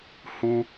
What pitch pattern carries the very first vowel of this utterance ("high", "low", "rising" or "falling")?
high